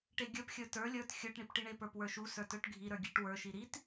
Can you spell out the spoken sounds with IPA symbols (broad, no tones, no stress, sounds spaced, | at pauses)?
ʈ e ɡʲ ə˞ p xʲ ə˞ t ə˞ lʲ ə˞ t xʲ ə˞ ʈ ɳ i p ʈ i ɳ e p ə˞ p w ə˞ ʃ u s ə˞ t ə˞ ʈ ɡʱ i ɾ ə˞ ɡʲ e ʈ w ə˞ ʃ i ɾ i t